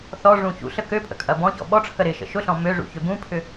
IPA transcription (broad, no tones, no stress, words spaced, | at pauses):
θɔʐũ çṵɬə køpʼə̰ kʼɐbɔ̃çɔ̰ ɓɔʈ͡ʂʰə ɾɪʃə̰ ʃʊɬɔ̃ møʐṵ çøbũpʰʏ